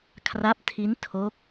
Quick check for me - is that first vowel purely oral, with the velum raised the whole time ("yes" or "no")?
yes